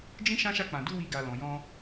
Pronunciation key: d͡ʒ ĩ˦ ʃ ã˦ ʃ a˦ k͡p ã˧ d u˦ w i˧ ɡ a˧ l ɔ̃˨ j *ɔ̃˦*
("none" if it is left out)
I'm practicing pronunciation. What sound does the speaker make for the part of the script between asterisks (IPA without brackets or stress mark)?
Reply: ɔ̃˧